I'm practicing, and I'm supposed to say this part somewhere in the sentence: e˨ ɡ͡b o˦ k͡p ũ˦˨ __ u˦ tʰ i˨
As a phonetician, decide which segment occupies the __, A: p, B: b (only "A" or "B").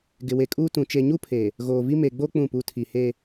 A